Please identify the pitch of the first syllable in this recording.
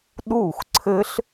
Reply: falling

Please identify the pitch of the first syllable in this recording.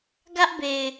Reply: high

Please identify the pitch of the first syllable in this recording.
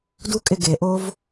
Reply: high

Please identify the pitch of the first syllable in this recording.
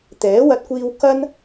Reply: rising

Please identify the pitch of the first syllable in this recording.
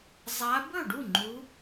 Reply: rising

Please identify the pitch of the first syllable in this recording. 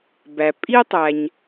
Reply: low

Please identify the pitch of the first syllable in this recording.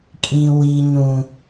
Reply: low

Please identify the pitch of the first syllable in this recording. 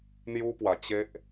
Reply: high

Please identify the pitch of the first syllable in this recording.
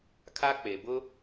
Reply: high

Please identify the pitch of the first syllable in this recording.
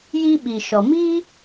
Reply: high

